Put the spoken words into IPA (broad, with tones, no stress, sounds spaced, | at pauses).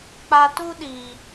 k͡p a˧ t u˦ ɗ iː˨